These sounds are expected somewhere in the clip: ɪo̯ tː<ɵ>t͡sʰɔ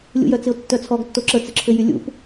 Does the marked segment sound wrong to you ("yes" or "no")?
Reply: yes